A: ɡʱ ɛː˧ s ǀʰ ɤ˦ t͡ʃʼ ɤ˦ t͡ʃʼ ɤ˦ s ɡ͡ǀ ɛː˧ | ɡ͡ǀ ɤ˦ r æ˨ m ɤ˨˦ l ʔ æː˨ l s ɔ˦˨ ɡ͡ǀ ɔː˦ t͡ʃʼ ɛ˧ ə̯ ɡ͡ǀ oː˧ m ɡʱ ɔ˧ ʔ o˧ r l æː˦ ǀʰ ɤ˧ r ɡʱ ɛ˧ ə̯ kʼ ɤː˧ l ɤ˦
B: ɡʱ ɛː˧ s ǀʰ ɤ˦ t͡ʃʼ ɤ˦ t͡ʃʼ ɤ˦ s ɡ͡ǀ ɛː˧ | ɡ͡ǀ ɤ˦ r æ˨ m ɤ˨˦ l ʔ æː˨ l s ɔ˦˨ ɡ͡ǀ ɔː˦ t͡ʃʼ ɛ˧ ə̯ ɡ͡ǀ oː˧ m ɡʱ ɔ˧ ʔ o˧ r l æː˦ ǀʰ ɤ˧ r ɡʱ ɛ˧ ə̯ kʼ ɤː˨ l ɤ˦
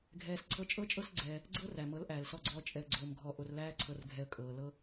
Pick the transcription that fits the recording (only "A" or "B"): B